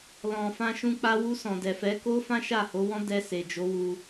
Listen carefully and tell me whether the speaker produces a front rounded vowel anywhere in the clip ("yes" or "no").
no